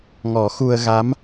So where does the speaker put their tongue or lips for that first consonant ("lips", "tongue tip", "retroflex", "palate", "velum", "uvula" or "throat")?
velum